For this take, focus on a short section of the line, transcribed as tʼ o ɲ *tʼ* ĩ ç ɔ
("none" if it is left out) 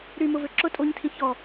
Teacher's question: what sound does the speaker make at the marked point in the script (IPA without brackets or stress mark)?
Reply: tʰ